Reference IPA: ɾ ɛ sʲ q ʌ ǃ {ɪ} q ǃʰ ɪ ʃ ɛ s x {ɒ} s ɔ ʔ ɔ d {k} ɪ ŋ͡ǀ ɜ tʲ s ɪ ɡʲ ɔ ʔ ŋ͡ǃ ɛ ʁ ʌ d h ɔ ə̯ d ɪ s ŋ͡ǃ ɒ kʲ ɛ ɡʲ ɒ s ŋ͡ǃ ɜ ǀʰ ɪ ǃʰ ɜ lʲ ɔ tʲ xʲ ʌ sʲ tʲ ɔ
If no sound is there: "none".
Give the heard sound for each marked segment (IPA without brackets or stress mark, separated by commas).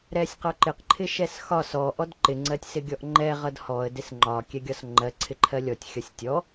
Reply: ɪ, ɒ, ǃ